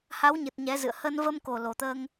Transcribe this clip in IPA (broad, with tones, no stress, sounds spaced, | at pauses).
h a˨˦ w ɲ ɨ˨˩ t̚ ɲ ɛ˨˦ z ɨ̰˧˨ ə̯ h ə˧ n v ə˧ m k o˨˩ l o˨˩ t̪ əː˧ ŋ